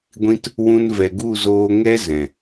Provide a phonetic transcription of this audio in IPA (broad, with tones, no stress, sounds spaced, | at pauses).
ɡʷ ĩ˧ t | w ũ˧ n v ɛ˨ ɡ u˦˨ z oː˧ ŋ ɛ˦ z ɛ̃˨